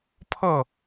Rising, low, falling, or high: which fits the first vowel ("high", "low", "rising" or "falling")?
falling